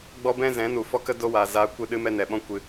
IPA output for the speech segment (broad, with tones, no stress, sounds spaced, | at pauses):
ɡ͡b ɔ˦ b ɛ̃˦ z ɛ̃˨˦ n u˨ f ɔ˦ k ə˦ d o˦ w aː˨ z aː˧ kʷ ɨ˦˨ ɗ ɨ˦ m ɛ˦ n ɛ˨ ɓ ɔ̃˧ kʷ ɨ˨